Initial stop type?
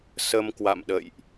plain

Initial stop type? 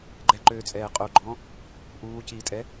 click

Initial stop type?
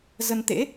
plain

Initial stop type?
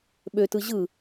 implosive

